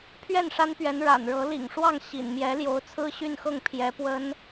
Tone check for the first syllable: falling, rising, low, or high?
falling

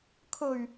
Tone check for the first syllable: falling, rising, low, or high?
low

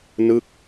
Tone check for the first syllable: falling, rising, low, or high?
falling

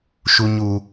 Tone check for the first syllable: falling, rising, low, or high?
low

